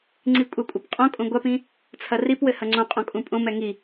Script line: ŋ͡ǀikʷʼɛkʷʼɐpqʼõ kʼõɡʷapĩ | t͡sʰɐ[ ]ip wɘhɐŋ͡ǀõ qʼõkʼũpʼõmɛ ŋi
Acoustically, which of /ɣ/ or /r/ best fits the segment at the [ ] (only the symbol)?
r